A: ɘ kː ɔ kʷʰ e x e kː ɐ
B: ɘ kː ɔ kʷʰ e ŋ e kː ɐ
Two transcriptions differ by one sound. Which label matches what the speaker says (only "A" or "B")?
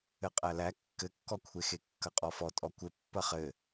A